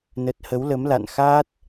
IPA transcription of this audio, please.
n ə˦˥ t̚ h ə˨˦ w l ə˨˦ m l a̰˧˨ n x aː˦˥ t̚

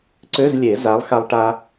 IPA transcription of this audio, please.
ǀ ø˧˥˧ z lʲ e˨˩˦ z a˨˥ lˠ x a˧ lˠ ʈ a˧

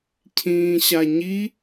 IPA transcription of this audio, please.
cʰ ĩː ɕ a ɲ i

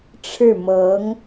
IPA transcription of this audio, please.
ʈ͡ʂʰ ɻ̩˥˩ m ɤ˧˥ ŋ

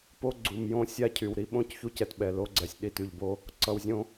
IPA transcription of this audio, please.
p o˦ ɡ͡ǀ u˨ m j õ˦ sʲ a˦ cʰ y˨ w ɾ i˦ ɓ õ˦˨ c ç u˦ c ɛ˨ t ɓ ɛ˨ l o˦ ɡ͡ǀ ɛ˨ sʲ ɗ i˦˨ t y˨ ʎ b o˦ | ǀ ʌ˨ w zʲ õ˦

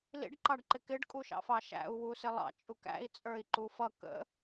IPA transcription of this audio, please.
l ḭ ɖ ǃ ɑ ɖ ǃ ɪ k ɪ ɖ kʼ u ʃ ɑ̰ f ɑ ʃ æ̰ u̯ w u s ɪ lˠ ɑ̰ t͡ʃʼ u k æ̰ i̯ t͡sʼ ə˞ i̯ ǃ u f ʌ k ə̰

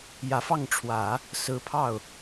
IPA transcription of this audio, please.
j ä˨˩ f ɑ˥˩ ŋ ʈ͡ʂʰ w ä˨˩˦ | s ɹ̩˧˥ pʰ ɑ˥˩ ʊ̯

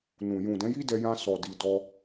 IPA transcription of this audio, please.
n ũ˨ j ũ˨ d ɛ̃˨˦ j i˦ d ɛ˧ j ã˧ s ɔ˨ d i˧ d ɔ˦

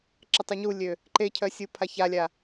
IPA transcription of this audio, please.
ǁ ə tˤ y ɲ u lʲ ø | ǃ e cʰ œ sʲ u pʰ a ç a lʲ a

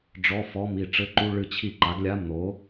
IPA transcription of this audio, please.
ɖ͡ʐ ɔ˧˥˧ f ɔ˧˥˧ m i˥˩ ʈ͡ʂ ɘ˧˥˧ ǃ u˧˥˧ ɭ ɨ˥˩ t͡ɕʰ i˥˩ ǃ a˨˥ ɡ lʲ a˧˥˧ m n̪ o˨˥

